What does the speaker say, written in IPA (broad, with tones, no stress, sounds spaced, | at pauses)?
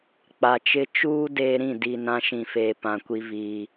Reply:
k͡p a˨ t͡ʃ ɪ˦ t͡ʃ uː˦ d eː˦ ɾ ĩ˦˨ d i˨ n ã˦ ʃ ĩ˨ f eː˨ p ã˨ kʷ i˦ v iː˦